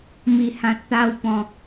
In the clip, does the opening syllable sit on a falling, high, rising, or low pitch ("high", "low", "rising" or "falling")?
low